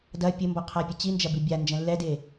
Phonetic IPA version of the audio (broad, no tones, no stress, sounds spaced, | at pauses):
d ɐ pʲ ɘ m b ɔ qʰ a pʲ ɘ t͡ɕ i n d͡ʒ ɐ b i bʲ a n d͡ʒ ɛ̃ lː ɛ d e